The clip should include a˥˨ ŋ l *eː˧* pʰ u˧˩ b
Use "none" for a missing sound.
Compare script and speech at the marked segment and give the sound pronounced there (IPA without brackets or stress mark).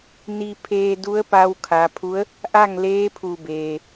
eː˧˥